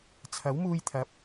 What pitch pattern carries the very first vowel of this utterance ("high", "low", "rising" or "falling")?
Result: rising